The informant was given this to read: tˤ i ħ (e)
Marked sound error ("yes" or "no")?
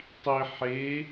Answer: no